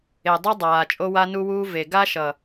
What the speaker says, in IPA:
e˨dˤu˦dˤaː˨ t͡ʃʼo˦wa˦nu˦wuː˦ ve˨ ɡa˦ʃʌ˨

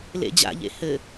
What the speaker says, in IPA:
lḛd͡ʑa̰ʎḛ hɘ

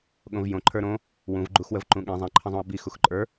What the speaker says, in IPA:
ɠõvjõ ǃʰə˞ɾõ | wũvɡ͡ǃuxwəv ǃũɠĩ zˤĩǃʰə̃zˤũɐ̯ bix uxǃʼə˞

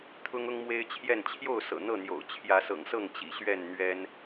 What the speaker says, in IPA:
t̪ʰʊ˦ŋʊ˦ŋmwe˦ɪ̯t͡ɕʰjɛ˥˨n t͡ɕʰjo˥˨ʊ̯ sɤ̰˨˩n̪ɤ˥˨n̪jo̰˨˩ʊ̯ t͡ɕʰjä˨˦sɤ̰˨˩ŋsɤ˥˨ŋ t͡ɕḭ˨˩ɕɥɛ˥˨nn̪ɥɛ˦n

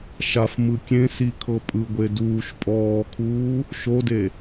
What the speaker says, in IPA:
ʃafmɯ kʲẽ sikʰɤ pʼɯɡʷe duːʃ pʼɔːkʰuː | ʃode

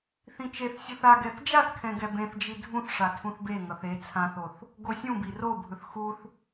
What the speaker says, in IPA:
θĩt͡ʃeθsʲuθ aɡɛθ d͡ʒaθkʰɛ̃ ɡɛbẽθd͡ʒi dʱũθʂa tʰũθbeŋʌθ e t͡sʰãθoθ | ɡosʲũbi robʱɯθ xuθ

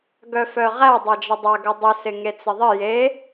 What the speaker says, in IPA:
ɡœfœʁæ dˤad͡ʒədˤaɡə dˤɪsɪ ŋet͡sɪðˤɪ je

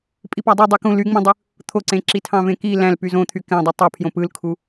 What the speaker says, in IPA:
pʼipɑdˤu dˤykũ lyŋ͡mĩdˤɯ | t̪ʰoǀẽǁi tʰɑ̃vẽki læ̃l pyzõt̪ʰy kæ̃dˤi tˤopʰjõ pɯlkʰu

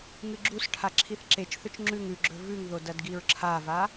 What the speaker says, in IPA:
ŋɨɡ͡ǁusʈʰa ǁʰiθǁet͡ʃθɵt͡ʃ ŋ͡ǁʉŋ ʉɡ͡ǁɵ vʉŋðo dɐdɡiɹǁʰava

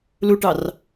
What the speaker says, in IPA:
luʈɑr

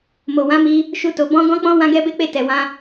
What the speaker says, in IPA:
mo˨ wã˨˦mi˧ | ʃu˧to˨ bɔ̃˧ ɡɔ̃˦k͡pɔ̃˦ wã˦ɡɛ˦be˦k͡pe˦˨ tɛ˨wã˧

